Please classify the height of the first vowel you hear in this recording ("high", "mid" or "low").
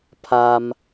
low